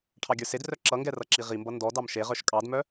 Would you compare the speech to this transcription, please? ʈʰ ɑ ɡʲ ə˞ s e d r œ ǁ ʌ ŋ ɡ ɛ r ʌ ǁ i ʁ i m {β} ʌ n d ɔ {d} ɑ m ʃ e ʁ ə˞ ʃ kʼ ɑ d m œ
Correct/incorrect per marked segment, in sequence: incorrect: b, correct

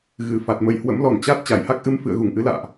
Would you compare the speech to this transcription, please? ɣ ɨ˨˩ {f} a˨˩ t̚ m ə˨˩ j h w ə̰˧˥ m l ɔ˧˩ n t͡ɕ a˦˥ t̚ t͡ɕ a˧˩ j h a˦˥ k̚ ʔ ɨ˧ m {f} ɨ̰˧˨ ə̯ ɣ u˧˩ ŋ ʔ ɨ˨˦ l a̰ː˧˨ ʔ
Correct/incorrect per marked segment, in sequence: correct, correct

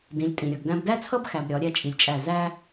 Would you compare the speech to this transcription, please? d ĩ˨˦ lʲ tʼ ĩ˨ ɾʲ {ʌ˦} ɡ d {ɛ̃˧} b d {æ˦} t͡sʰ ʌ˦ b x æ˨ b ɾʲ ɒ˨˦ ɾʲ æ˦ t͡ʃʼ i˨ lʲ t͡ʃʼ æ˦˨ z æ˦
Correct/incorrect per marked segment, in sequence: incorrect: ʌ˨, incorrect: æ̃˧, correct

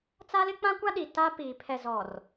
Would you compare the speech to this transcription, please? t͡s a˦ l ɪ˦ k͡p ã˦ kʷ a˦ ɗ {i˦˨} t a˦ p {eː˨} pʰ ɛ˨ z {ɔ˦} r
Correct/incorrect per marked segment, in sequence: incorrect: i˨, incorrect: iː˨, incorrect: ɔ˨

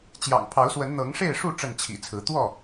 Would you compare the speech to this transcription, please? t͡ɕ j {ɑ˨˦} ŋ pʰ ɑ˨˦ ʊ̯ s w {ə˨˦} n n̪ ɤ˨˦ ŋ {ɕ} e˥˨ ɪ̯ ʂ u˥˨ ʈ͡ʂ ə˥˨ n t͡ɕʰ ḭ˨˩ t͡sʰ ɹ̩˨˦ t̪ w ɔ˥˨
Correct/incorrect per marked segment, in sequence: incorrect: ɑ̰˨˩, correct, incorrect: ʂ

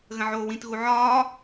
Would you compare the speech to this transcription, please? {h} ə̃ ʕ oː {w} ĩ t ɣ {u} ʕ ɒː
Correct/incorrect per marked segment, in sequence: incorrect: ɣ, correct, correct

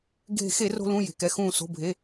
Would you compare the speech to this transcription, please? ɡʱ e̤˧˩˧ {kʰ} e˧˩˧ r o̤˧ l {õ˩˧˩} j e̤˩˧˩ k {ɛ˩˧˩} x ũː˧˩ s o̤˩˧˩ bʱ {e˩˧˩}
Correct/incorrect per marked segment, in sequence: incorrect: x, incorrect: ũ˩˧˩, correct, correct

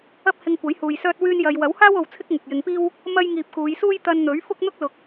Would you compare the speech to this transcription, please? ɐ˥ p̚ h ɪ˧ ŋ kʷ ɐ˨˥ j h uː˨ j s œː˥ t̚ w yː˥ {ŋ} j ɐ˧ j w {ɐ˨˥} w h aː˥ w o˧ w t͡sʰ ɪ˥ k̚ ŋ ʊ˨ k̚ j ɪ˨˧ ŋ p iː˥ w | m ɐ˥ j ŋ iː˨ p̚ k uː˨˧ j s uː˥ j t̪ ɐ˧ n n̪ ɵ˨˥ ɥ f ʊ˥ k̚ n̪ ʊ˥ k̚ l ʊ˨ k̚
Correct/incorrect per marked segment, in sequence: incorrect: n, correct

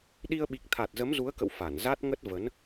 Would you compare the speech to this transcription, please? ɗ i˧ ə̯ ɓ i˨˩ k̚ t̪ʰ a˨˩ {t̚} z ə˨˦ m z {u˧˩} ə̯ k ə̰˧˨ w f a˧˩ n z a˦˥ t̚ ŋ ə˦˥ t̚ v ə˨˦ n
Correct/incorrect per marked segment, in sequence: correct, incorrect: u˨˦

